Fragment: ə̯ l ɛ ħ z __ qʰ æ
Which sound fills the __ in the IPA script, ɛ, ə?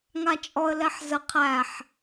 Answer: ə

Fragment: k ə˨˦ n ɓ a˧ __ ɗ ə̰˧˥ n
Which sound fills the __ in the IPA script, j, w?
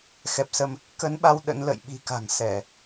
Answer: w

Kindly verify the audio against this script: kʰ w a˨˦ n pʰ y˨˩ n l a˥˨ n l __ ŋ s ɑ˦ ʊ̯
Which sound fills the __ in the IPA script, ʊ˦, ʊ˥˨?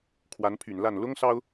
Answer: ʊ˦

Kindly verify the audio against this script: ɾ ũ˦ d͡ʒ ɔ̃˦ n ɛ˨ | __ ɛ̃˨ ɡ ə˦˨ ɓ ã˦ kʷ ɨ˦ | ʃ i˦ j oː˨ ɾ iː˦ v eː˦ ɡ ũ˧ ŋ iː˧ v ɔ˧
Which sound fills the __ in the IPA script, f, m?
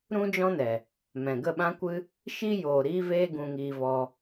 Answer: m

